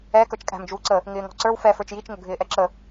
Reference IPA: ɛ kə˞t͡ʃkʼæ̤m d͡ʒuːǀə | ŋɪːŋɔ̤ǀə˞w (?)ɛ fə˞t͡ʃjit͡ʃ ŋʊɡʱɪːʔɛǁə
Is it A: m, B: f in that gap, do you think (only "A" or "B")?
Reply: B